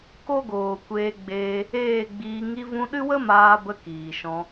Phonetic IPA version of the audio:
k o˦ ɡ oː˨ kʷ eː˧ ɡ͡b eː˧ | eː˦˨ ɡ͡b iː˧ ŋ i˧ v ũ˧ ɗ ɨ˦ w ə˦ m aː˧ b ə˧ k iː˨ ʃ ɔ̃˧

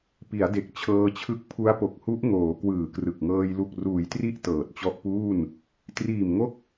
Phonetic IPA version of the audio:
p i˩˦ a̯ d e˨˩ k̚ t͡ɕʰ ɤː˧ t͡ɕʰ ɯ˦˥ k̚ pʰ u˦˥ a̯ p o˨˩ k̚ h u˦˥ ʔ ŋ oː˩˦ k w ɯː˨˩ k r ɯ˨˩ k̚ ŋ ɤː˧ j l u˨˩ k̚ r uː˩˦ j t r i˦˥ ʔ t ɤː˨˩ t̚ t͡ɕ ɔ˦˥ ʔ p uː˥˩ n | t r iː˨˩ m ŋ o˦˥ k̚

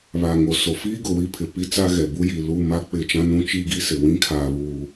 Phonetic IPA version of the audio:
β a˨ ŋ o˨ s o˨ f iː˦ ɡ ʊ˨ w i˦ pʰ ɪ˨ p i˦ t͡s a˦ ɣ ɛ˨ b u˦ j i˨ l u˦˨ m a˦ k͡p ɪ˦˨ t͡ʃ ã˦ n ũ˦ t͡ʃ i˦ ɡ i˦ s ɪ˨ w ĩ˦ kʰ aː˨ β uː˨

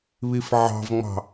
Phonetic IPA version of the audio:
β i f ʕ ɑ̤ v ŋ͡m ɑ̤

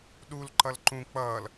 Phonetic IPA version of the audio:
ɗ u l ǃ ʌ l ǃ ũ k͡p ʌː l

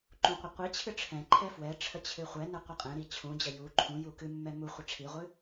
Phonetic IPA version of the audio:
ǃ ũ qʷ ə qʷ i t͡ɕʰ ɨ ʈ͡ʂʰ ɛ̃ ǃʰ ɛ f w ɛ ʈ͡ʂʰ ə t͡ɕʰ ɨ χʷ ɛ n ə qʷ a qʼ ɛ̃ ɾ i t͡ɕʰ ũ d͡ʑ ə j u ǃʰ ũ j u k ɨ mː ɛ m u χʷ ɛ ʈ͡ʂʰ i ʁʷ ɨ

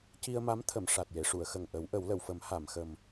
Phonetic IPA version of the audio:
c i˧ ə̯ m a˧˥ m t̪ʰ ə˨˩˨ m ʂ a˨˩ t̚ j e˨˩˨ ʂ u˨˩˨ ə̯ x ə˨˩ ŋ ʔ ə˨˩˦ w ʔ ə˨˩˦ w l ə˨˩˨ w f ə˨˩˦ m h a˨˩˨ m x ə˨˩ m

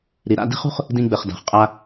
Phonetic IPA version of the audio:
ɾ i˩ ɾ a̰˧ d i̤˥ χ ṳ˥ χ | d ĩ˧ ɡ͡b ɘ˩ χ d a̤˩ χ qʼ a˧

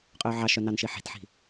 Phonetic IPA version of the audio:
qʼ ɵː ʕ ɑ ʃ œ n ɑ n ʃ i ħ i̤ t ħ i̤

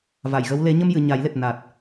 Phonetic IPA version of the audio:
v a˨˩˨ j ɣ ə˧˥ w l e˨˩˦ ɲ ə˧ m j ɨ˨˩˨ ɲ a˨˩˦ j l e˨˩ t̚ n a˨˩ t̚

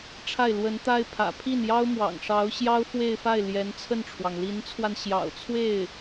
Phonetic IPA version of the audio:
ʈ͡ʂʰ a˥˩ ɪ̯ l w ə˧˥ n t̪ a˥ ɪ̯ pʰ ä̰˨˩ pʰ i˥˩ n j ɑ˥ ʊ̯ m w ɑ̰˨˩ ŋ ʂ ɑ˧˥ ʊ̯ ɕ j ɑ˥ ʊ̯ f w e˥˧ ɪ̯ f a˥˩ ɪ̯ l j ɛ˧˥ n t͡sʰ ə˥˩ n ʈ͡ʂʰ w ɑ˩ ŋ l i˧˥ n t͡sʰ w a˧ n ɕ j ɑ̰˨˩ ʊ̯ t͡sʰ w e˥˩ ɪ̯

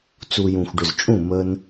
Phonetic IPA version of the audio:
t͡s u˧ j ũ˨ xʷ ɖ ʏ˨ z t͡ʃʼ ũ˦˨ m ə˦ n

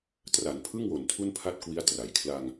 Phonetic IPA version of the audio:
t r a˩˦ n pʰ ɯ˥˩ ŋ w o˨˩ n tʰ u˥˩ n pʰ a˥˩ t̚ k w i˦˥ a̯ t r a˨˩ j kʰ l aː˧ ŋ

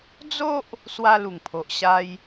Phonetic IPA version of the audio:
d͡z o˦ ʔ | s w a˧ l u˨˩ ŋ pʰ o˨ ʔ ɕ a˧ j

